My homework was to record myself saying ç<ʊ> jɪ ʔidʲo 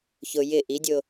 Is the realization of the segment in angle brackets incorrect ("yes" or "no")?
no